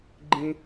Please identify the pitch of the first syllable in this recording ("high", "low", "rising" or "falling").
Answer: high